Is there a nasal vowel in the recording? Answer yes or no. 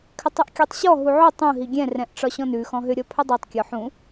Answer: yes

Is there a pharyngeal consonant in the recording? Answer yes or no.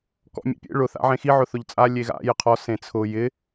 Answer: yes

